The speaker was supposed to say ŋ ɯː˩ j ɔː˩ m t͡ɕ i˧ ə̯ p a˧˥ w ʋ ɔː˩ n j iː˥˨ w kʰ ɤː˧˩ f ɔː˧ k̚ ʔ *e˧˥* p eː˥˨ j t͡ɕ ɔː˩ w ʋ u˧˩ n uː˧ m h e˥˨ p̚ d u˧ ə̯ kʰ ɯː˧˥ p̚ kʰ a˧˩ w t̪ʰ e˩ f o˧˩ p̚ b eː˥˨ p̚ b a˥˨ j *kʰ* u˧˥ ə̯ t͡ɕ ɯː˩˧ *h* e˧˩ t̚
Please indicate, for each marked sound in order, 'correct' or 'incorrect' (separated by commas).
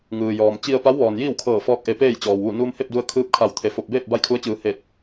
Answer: incorrect, correct, correct